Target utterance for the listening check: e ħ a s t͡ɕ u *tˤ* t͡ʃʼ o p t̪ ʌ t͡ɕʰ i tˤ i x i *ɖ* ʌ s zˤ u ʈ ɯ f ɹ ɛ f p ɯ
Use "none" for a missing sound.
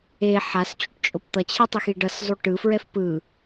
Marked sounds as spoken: ʈ, ɖ

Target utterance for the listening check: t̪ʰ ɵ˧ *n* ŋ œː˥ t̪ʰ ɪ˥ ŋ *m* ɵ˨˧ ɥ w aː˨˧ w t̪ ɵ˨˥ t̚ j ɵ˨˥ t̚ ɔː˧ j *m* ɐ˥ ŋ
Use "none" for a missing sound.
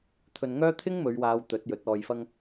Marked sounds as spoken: n, m, f

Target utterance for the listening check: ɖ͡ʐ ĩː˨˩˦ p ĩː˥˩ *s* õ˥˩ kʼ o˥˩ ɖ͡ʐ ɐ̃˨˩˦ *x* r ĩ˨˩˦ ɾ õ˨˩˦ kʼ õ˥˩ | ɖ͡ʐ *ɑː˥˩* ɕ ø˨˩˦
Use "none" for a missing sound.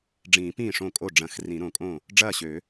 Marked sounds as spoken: ʂ, x, ɐː˥˩

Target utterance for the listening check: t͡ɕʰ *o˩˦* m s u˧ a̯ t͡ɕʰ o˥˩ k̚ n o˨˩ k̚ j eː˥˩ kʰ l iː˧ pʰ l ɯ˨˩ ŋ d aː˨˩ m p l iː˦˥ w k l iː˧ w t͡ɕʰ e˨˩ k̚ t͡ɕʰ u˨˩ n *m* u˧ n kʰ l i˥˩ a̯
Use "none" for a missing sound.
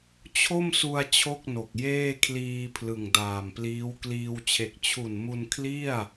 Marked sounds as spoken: o˥˩, m

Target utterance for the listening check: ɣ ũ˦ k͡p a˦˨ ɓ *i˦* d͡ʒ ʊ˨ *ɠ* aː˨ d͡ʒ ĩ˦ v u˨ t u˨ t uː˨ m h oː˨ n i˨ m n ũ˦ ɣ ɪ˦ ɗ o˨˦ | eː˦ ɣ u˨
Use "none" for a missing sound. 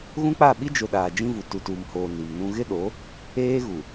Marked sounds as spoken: i˦, ɗ

